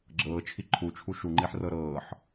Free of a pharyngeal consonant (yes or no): no